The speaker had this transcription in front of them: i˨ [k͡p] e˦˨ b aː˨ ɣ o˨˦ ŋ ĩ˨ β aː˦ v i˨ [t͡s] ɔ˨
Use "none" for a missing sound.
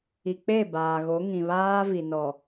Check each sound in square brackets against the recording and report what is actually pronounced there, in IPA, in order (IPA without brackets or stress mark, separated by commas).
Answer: k͡p, n